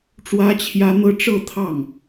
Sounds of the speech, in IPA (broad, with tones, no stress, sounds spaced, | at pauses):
ʈ͡ʂ w ä˥ t͡ɕʰ j ä˥ n̪ ɤ˥ ʈ͡ʂ ɤ˥˧ t̪ʰ ɑ˥˩ ŋ